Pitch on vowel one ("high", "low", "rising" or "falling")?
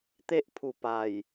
high